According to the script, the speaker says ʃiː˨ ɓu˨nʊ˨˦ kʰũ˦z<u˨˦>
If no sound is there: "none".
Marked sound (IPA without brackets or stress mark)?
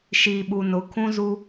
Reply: u˦